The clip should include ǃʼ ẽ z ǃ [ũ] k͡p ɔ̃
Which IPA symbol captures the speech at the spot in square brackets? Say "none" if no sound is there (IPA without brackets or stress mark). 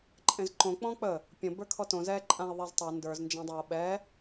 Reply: õ